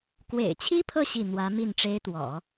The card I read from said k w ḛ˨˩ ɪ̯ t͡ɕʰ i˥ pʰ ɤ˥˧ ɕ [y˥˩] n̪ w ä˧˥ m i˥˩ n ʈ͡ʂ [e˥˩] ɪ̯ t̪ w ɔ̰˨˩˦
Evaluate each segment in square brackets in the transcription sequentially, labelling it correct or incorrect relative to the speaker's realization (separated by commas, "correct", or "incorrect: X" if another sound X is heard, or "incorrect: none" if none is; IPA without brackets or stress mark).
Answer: incorrect: i˥˩, incorrect: e˥